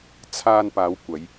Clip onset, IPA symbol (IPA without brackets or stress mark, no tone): t͡sʰ